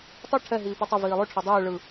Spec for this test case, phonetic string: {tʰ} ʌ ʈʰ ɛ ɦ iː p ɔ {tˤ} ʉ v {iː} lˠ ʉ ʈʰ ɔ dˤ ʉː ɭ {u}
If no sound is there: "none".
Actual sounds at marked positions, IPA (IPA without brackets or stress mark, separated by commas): tˤ, tˤ, iː, ɯ